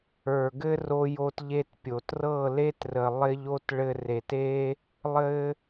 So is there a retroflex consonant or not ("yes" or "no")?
yes